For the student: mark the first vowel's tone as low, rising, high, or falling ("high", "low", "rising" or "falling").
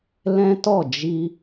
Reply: high